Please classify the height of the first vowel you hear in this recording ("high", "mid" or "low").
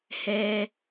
mid